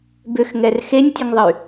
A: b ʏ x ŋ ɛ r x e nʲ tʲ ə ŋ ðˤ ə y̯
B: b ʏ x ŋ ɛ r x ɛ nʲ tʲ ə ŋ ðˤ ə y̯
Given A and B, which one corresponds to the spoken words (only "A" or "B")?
A